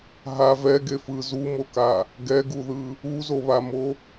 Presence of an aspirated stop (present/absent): absent